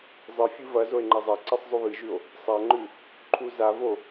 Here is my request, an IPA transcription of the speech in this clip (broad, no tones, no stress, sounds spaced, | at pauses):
zˤ ɨ fʲ ɨ v ɐ z o e̯ ŋ͡ǃ ɐ zˤ a ǀ e sˤ zˤ ʉ β ɨ ʒ ʉ o̯ | sˤ a ŋ͡ǃ ʉ | ǃʰ u z a v o